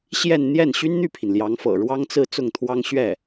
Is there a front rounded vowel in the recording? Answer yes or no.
yes